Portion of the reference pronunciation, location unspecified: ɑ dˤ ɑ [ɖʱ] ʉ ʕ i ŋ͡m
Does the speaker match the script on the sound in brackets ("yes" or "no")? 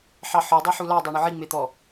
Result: no